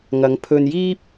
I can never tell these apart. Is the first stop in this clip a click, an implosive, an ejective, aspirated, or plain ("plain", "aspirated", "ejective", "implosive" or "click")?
aspirated